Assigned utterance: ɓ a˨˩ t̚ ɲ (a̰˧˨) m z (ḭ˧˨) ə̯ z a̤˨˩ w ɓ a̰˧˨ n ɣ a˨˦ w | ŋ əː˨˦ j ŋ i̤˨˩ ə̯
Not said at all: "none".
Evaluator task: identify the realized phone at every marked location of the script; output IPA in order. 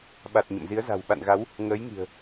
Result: ə̰˧˨, i˨˦

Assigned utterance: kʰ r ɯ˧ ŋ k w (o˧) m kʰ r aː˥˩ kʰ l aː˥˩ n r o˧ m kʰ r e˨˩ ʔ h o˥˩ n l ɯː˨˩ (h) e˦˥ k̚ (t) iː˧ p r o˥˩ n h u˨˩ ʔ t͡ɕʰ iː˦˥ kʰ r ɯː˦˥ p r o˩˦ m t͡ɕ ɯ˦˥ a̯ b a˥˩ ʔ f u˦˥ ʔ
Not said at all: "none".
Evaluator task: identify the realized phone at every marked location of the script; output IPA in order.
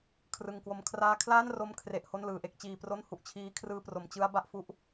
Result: o˧, ʔ, t͡ɕ

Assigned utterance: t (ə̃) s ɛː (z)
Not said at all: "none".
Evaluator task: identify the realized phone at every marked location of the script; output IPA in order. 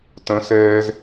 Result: ə̃, z

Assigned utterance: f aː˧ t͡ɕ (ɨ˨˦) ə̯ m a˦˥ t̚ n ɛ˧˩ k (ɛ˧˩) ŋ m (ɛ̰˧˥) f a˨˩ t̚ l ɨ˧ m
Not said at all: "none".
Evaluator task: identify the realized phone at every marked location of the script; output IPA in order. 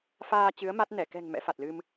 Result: ɨ˨˦, ɛ̤˨˩, ɛ̰˧˥

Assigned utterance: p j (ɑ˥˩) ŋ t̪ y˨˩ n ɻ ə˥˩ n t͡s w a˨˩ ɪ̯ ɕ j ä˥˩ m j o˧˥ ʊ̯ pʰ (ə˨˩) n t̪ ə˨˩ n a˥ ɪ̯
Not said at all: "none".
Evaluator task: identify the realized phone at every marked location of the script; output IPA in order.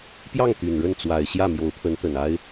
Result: ɑ˥˩, ə˧˥

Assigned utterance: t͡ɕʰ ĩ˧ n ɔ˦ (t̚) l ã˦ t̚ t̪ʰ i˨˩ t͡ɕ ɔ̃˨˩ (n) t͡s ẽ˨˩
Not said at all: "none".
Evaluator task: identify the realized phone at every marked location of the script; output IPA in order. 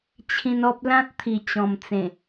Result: p̚, m

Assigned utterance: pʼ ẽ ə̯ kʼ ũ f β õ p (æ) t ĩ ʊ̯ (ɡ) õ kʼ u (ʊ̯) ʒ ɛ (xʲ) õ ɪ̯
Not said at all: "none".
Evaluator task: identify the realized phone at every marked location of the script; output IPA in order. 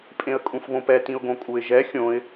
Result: ɛ, ɡ, ɪ̯, xʲ

